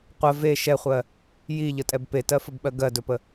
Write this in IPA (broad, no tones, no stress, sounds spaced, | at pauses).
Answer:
qʷ ɜ v e ʃ ɛ χʷ ɜ | j i ʎ ə tʼ ɛ b p e t ɜ f ə b ɓ ɜ ɡ ɜ d ɵ p ə